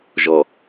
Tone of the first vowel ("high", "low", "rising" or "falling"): low